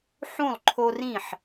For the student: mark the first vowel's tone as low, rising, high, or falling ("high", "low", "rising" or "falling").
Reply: falling